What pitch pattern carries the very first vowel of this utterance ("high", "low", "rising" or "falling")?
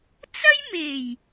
high